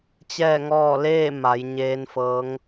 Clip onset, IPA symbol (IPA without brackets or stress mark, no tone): t͡ɕ